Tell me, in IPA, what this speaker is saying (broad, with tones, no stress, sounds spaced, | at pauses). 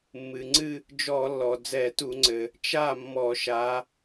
mː ɨ˩ ŋ͡ǀ ɨ˥˧ | d͡ʒ ɔ˧˩˧ lː ɔ˩ d͡z ɛ˧˩˧ t u˧˩˧ ŋ͡ǀ ɘ˩ | t͡ʃ a˥˩ mː ɔ˧˩˧ ʃ a˨˦